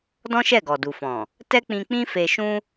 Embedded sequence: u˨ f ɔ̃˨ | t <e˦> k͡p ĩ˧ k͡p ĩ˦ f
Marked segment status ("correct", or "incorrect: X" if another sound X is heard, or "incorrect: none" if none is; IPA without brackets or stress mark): incorrect: ɛ˦